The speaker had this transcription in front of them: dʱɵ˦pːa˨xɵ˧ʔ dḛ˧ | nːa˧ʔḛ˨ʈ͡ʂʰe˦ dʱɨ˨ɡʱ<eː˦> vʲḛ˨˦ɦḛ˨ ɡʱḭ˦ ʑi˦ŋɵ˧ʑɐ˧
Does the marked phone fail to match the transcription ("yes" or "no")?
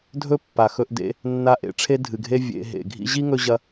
yes